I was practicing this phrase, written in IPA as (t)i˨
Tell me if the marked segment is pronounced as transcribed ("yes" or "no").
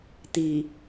yes